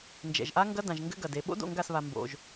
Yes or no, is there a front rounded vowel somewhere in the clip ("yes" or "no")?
no